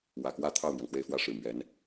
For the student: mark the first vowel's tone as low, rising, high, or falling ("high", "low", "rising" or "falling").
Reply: low